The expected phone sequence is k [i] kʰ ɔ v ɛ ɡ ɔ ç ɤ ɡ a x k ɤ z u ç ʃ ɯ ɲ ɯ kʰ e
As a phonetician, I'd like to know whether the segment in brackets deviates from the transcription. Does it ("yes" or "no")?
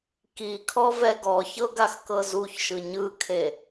no